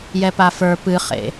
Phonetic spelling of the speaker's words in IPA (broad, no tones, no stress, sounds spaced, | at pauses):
j ɛ p a f ə˞ p ɨ χ ḛ